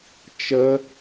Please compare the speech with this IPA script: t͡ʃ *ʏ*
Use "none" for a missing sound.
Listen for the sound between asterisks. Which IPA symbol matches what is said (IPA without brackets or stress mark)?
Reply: ə